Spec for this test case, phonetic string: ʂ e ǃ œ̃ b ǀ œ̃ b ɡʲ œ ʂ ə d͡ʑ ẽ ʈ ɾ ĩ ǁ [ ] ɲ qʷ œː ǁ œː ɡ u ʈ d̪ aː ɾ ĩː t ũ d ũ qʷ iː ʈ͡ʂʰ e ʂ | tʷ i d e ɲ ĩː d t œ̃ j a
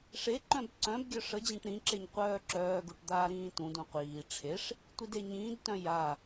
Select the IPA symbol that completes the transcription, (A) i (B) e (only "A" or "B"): B